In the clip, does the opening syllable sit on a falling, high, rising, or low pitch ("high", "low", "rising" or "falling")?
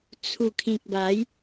low